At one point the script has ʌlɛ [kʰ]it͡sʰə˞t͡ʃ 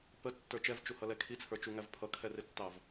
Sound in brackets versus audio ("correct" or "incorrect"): correct